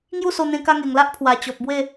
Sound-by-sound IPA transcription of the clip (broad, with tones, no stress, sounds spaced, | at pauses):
ŋ j u˥˧ s o˧ n̪ ẽ˧ k a˧ ŋ e˨˩ ŋ l a˦ ʔ pʰ w a˨˩ t͡ɕ ɔ˨ p̚ b w e˥˧